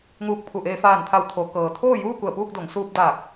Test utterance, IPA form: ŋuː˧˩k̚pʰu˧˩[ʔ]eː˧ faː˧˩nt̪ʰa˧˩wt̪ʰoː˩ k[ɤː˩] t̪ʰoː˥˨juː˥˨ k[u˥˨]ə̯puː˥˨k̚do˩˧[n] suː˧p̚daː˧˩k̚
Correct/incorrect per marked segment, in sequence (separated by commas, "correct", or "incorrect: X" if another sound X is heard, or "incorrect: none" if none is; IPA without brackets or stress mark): correct, correct, incorrect: u˧˩, incorrect: ŋ